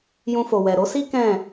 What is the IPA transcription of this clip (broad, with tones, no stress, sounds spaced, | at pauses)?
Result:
j ũ˧ f o˨ w ɛ˨ ɾ o˨˦ s i˦ k ɛ̃˦˨